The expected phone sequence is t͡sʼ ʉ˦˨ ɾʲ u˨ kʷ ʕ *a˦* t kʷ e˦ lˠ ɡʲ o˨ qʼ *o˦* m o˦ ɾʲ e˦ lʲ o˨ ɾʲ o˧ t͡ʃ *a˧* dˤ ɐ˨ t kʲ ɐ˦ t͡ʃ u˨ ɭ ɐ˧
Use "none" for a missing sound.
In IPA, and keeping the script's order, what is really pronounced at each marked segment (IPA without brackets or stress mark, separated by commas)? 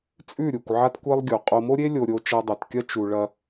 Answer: a˦, o˧, a˧